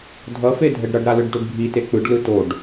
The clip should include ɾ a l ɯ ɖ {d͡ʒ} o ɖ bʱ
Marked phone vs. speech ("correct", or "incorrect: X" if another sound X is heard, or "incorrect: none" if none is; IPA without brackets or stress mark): incorrect: d